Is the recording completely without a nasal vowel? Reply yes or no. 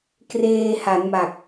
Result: yes